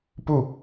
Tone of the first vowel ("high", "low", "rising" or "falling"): falling